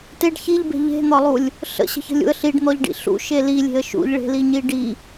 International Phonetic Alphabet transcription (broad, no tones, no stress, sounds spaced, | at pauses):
t e ɖ ç i ʎ b e̤ ʎ e̤ n̪ ɒ lˠ u lʲ | ɬ ə̰ ɕ ə̤ ç ə̤ lʲ ṵ ə̯ ɬ i ɖ n̪ ɔ ʎ ɖ ḭ ɬ ṵ ʃ e l i lʲ e̤ ə̯ ʃ ṵ ʎ ɭ e̤ l i ɲ i ɖ i